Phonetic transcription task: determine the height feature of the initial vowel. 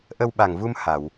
mid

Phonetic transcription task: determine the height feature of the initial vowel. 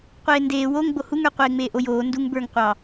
mid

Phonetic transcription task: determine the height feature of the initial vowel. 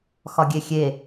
low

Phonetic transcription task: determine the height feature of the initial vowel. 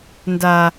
low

